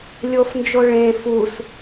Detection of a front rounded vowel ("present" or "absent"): absent